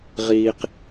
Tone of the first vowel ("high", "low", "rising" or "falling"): low